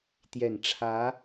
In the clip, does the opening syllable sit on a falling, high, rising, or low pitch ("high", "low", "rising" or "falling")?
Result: low